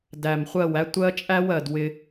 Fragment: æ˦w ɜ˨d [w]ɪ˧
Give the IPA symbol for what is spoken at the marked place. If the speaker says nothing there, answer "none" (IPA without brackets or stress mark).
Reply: w